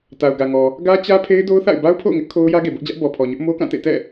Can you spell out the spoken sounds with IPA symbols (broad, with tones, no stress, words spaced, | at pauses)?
ta˨ʊ̯ɡä˨ŋɔ˨ | ɡä˦t͡ɕä˦ pʰe˦ɪ̯do˦ʊ̯θa̰˦˨ɪ̯ ba˦ʊ̯pʰo̰˦˨ʊ̯ŋɪ˦ʔ kʰo˦ʊ̯ jä˦ɡe˨bʊ˦ʔd͡ʑä˦ʔ bɔ˨pʰɔ˨ɲʊ˦ʔ mo˦kã˦˨tḛ˦˨tɛ̰˦˨